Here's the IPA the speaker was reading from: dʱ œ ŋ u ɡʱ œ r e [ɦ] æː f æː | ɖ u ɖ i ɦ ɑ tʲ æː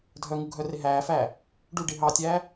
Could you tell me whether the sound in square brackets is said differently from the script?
no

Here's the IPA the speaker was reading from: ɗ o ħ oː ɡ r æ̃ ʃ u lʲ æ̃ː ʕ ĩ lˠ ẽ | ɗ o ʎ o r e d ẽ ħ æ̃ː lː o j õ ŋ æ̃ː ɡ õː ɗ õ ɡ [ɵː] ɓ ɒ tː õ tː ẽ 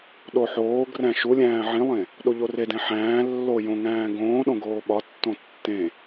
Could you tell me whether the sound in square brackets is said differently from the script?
yes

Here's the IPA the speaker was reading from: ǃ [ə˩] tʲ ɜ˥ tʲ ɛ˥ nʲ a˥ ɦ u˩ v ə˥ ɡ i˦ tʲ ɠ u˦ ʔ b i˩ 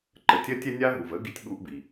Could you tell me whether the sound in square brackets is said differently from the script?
yes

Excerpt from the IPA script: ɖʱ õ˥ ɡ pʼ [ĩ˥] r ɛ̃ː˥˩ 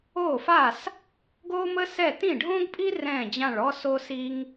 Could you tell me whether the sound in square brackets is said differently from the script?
yes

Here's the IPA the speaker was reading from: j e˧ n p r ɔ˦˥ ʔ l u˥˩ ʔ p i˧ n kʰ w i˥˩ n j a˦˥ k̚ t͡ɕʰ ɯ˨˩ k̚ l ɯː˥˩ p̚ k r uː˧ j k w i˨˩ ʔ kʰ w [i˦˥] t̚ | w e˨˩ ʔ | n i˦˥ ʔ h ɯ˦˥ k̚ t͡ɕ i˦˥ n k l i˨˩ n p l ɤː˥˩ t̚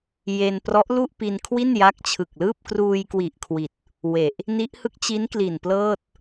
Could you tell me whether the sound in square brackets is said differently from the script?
yes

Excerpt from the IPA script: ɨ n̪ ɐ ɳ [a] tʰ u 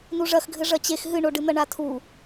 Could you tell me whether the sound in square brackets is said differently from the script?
no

